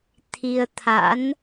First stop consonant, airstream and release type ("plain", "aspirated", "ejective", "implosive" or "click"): aspirated